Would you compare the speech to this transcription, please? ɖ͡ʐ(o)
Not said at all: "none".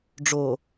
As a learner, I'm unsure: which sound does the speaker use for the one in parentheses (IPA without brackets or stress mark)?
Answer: o